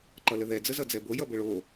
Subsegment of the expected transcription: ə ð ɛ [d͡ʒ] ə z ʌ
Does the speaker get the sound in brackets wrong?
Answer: yes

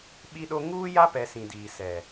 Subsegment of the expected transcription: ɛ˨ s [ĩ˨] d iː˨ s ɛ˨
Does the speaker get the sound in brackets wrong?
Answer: no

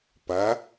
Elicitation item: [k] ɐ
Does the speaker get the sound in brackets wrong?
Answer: yes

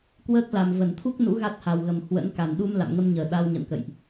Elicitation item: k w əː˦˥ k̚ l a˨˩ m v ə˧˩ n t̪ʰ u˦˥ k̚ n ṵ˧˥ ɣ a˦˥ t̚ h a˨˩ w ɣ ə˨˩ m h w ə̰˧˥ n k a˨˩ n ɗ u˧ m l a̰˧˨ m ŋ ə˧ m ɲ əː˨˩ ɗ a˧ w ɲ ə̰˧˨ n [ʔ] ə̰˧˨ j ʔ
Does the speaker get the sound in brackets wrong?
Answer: yes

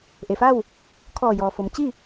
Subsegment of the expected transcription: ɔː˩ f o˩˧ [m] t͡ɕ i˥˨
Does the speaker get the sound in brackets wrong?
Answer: no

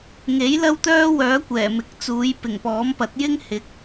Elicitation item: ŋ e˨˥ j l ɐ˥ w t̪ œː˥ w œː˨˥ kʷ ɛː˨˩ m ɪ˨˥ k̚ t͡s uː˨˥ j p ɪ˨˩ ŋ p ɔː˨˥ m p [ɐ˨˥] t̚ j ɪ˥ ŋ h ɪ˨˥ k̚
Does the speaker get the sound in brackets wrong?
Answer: no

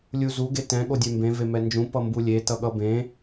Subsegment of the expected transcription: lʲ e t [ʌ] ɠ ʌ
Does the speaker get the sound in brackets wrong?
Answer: no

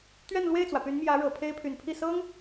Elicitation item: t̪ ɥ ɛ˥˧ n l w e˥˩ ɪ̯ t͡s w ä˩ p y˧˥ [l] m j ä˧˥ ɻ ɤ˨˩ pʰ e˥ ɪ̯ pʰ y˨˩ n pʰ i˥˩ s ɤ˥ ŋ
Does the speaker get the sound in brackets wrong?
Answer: yes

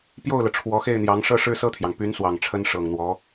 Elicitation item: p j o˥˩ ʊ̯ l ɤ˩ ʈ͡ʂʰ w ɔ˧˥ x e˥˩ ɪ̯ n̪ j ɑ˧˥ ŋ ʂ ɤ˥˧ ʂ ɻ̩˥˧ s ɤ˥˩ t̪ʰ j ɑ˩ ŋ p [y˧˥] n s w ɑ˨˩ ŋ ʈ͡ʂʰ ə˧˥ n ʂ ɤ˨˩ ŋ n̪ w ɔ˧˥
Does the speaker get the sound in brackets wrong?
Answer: no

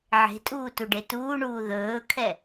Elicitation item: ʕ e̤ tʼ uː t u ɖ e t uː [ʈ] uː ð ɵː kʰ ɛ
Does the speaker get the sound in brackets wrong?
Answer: yes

